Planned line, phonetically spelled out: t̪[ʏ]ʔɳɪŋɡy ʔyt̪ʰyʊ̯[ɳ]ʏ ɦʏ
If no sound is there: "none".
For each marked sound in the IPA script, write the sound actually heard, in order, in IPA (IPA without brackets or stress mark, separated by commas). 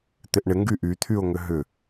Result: ɪ, ŋ